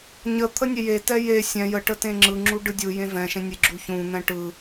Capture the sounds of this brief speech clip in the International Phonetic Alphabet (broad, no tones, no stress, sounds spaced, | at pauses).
ɲ ə t̪ʰ ə nʲ e j e t ɛ j e sʲ ɛ̃ j ə ʈ ə t ẽ ŋ͡ǁ ɯ ŋ͡ǁ u ɖ ɯ dʲ ɯ j ẽ v ɛ̃ ʃ ẽ nʲ e ɡ͡ǁ u ç ũ n̪ ɛ̃ ʈ ɯ